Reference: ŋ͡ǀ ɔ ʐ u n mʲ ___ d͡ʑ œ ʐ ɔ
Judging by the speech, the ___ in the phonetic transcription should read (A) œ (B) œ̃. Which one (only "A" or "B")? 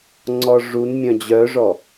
B